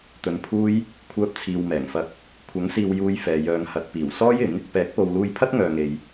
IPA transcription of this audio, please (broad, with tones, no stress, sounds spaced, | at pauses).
t̪ ɵ˨ n pʰ uː˥ j | kʷʰ œː˧ p̚ t͡sʰ iː˨ w m ɛː˨˩ ŋ f ɐ˧ k̚ | kʷʰ ɐ˨˥ ŋ s iː˨ w j uː˧ j f ɛː˨ j œː˨ ŋ h ɐ˨ t̚ p iː˨˩ w s ɔː˥ j ɪ˨˥ ŋ | p ɛː˨˥ k̚ p o˨ w l uː˧ j pʰ ɐ˥ t̚ ŋ œː˨ ŋ e˨ j